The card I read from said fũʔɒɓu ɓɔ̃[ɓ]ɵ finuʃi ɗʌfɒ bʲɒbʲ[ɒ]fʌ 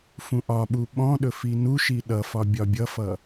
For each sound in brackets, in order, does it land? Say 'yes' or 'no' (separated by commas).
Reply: no, no